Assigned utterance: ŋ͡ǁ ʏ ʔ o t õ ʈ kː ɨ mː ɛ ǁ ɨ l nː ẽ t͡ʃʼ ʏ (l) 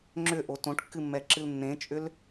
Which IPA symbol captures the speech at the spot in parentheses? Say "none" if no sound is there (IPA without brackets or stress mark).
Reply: l